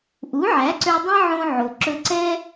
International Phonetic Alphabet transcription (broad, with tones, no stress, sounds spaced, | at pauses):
ʔ u˩˥ ʕ æ˩˥ ǀ ø˧ dˤ ĩ˥ ʕ õ˧ ʕ o˩ ǁ ɵ˧ ǀ ɛ˥